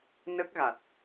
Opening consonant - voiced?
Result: yes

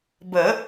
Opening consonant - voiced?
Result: yes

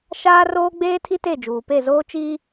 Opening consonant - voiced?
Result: no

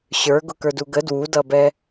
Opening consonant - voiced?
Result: no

